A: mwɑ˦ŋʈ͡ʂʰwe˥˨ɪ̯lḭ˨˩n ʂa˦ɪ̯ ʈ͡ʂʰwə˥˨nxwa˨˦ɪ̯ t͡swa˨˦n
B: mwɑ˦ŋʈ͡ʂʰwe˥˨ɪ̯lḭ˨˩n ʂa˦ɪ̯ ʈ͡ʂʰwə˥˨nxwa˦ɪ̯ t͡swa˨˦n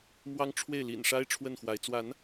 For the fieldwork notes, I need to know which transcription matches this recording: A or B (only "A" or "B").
A